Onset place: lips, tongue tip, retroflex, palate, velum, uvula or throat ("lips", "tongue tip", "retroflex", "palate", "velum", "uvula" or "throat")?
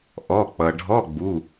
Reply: throat